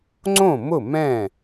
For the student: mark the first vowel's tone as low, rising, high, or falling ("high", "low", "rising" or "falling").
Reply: falling